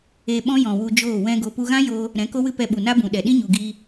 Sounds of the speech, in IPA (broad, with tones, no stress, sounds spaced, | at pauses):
e˧ ɓ ɔ̃˦ j ɔ̃˨ w u˧ d͡ʒ oː˦˨ w ɛ̃˦ ɡ o˧ p u˧ ɣ ã˦ j oː˧ | ɾ ɛ̃˨˦ k o˦ w ɨ˦ p ɛ˧ ɓ u˨ n a˦ b ũ˨ ɗ ɛ˨ ɗ ĩ˦ ɲ u˨ ɡ iː˧